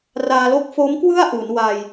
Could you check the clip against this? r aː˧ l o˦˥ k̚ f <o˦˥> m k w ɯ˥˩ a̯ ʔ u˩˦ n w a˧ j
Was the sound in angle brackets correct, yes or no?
yes